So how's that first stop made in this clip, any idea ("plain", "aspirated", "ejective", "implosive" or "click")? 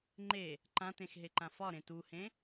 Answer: click